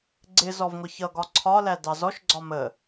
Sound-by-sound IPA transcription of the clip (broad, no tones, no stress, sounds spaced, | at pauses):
ɡ͡ǀ ɪ z ɔ v ŋʷ ʌ ç ʌ ɡ ɒ ǀʰ ɒ l æ d ɑ z ɔ ʃ ɡ͡ǀ ɒ m ə